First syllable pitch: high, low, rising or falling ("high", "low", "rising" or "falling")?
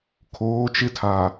rising